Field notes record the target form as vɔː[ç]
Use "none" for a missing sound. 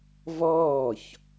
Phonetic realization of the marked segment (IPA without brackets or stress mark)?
ç